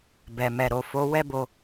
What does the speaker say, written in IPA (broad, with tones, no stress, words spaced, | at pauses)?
bɛ˨mɛ˨ ɾo˨fo˨˦ wɛ˦bo˧